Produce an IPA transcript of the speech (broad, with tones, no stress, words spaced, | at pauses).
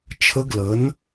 t͡ʃʰə˦˥ɡlə˨˥n